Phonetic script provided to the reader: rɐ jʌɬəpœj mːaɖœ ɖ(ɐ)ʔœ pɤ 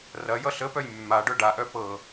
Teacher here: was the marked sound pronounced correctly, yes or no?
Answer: no